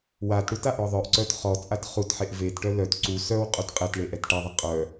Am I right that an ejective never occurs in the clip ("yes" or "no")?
no